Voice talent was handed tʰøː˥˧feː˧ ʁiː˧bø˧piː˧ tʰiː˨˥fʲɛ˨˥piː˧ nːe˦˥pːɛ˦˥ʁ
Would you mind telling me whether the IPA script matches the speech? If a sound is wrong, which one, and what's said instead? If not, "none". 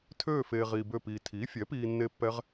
ø˧ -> ø˥˧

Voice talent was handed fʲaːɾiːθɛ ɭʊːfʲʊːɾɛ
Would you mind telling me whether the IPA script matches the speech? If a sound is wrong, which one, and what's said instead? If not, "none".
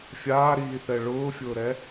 none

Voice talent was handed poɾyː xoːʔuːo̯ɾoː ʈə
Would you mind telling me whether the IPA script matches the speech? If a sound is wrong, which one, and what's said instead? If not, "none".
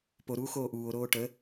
yː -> uː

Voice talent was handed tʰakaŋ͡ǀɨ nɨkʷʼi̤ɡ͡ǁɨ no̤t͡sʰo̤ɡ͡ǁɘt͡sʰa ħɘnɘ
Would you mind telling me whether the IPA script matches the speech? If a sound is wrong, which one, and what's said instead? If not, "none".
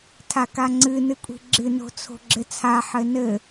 none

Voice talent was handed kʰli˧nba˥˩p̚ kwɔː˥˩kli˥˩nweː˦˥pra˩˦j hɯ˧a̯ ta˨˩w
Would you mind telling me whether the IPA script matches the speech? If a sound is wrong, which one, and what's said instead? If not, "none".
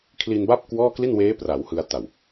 j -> w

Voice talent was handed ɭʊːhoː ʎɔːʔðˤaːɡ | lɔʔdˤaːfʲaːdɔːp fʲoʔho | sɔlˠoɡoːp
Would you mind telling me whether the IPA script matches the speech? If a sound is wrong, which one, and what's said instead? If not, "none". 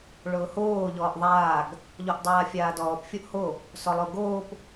l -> ʎ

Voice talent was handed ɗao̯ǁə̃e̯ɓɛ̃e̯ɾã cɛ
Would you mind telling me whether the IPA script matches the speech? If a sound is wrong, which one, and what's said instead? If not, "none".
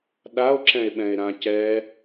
ə̃ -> ɛ̃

